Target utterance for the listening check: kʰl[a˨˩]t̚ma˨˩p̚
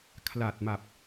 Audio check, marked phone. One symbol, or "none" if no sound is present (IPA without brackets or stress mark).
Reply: a˨˩